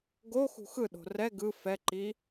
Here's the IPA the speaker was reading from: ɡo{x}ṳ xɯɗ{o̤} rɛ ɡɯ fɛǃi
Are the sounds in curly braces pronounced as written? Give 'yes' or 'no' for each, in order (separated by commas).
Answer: yes, yes